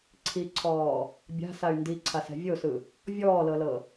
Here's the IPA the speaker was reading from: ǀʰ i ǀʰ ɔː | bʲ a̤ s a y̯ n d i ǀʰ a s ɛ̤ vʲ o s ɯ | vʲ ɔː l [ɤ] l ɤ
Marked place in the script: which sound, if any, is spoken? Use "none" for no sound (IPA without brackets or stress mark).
ɤ